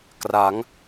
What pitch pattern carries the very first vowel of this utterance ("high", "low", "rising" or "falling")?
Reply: rising